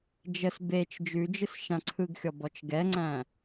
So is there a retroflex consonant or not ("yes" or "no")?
no